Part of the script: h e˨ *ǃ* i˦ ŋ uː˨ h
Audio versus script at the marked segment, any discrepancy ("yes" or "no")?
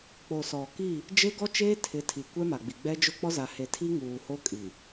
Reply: yes